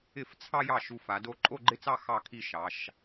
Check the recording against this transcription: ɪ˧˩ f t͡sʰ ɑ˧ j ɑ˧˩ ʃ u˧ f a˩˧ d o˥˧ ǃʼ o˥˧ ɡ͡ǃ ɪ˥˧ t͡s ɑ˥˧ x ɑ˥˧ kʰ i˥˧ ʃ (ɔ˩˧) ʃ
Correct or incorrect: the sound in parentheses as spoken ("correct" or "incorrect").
incorrect